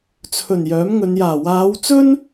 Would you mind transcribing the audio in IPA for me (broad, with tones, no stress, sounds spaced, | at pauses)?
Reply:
t͡sʰ ɵ˨˩ n j œː˨˥ m ŋ ɵ˨˧ n j aː˨˩ w aː˨˧ w t͡s ɵ˥ n